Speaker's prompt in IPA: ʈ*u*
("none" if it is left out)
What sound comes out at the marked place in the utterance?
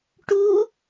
u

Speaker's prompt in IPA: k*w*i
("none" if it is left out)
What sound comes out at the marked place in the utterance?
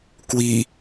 w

